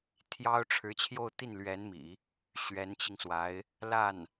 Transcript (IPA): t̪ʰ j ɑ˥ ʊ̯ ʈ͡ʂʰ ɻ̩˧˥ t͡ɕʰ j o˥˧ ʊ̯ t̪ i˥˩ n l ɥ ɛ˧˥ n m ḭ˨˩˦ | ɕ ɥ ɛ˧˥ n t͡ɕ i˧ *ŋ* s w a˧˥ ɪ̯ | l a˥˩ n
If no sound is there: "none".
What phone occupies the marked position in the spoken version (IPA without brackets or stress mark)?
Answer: ŋ